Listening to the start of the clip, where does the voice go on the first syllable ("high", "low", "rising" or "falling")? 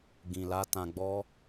low